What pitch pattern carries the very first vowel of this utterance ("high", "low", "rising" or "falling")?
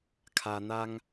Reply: low